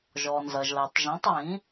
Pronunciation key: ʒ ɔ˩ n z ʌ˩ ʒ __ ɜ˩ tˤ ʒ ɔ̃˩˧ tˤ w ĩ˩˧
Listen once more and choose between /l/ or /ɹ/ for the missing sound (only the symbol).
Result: l